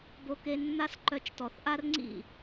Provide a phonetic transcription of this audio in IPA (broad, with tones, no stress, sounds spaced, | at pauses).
b o˧ k e˧ nː a˦ s ǃ œ˧ t͡ʃ t ɔ˨ θ ʔ a˦ r ŋ͡ǀ ḭ˦˨